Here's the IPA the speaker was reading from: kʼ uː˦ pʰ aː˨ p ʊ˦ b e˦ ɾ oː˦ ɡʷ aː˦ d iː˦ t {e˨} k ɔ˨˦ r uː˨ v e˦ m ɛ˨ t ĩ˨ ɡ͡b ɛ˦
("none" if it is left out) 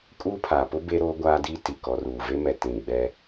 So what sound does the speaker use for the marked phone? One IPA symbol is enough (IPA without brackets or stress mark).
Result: i˨